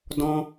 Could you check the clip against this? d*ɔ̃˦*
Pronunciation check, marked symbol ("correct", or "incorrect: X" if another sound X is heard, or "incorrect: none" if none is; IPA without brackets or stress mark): correct